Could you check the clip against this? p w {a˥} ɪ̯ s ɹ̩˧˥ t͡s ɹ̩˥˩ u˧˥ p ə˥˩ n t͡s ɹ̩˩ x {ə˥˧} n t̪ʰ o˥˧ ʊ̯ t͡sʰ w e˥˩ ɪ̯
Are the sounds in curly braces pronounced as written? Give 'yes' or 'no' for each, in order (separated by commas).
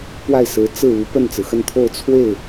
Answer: no, yes